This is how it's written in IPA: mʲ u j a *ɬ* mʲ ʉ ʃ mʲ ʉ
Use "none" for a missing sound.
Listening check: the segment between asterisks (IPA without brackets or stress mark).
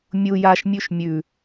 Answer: ʃ